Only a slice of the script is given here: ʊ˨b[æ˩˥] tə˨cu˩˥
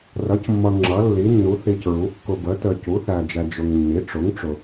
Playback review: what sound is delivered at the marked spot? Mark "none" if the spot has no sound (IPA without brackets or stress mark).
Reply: ə˩˥